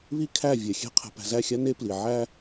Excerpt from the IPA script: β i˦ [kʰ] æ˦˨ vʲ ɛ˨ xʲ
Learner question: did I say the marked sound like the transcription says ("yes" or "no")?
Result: yes